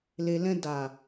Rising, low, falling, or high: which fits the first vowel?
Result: low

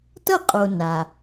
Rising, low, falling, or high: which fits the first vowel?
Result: falling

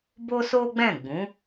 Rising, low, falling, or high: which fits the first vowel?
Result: high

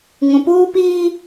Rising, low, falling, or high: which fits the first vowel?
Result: low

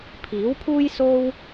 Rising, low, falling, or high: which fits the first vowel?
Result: rising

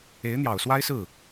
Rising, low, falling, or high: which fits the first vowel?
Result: rising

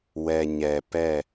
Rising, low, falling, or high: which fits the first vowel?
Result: low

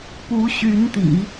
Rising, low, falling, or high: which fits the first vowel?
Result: rising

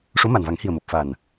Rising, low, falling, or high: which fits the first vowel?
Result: rising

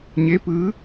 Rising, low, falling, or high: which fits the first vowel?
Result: rising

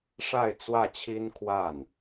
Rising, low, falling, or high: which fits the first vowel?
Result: falling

